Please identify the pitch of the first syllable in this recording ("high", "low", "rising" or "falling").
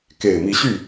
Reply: low